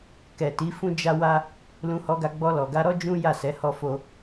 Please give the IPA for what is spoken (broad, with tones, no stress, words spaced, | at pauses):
kɛ˨ti˨˦ fũ˦d͡ʒa˦wa˦ | lũ˧hɔ˧ɡa˧ ɡ͡bɔ˧lɔ˨ɡa˧ɾɔ˦ d͡ʒũ˦ja˦˨sɛ˨˦ hɔ˦fo˦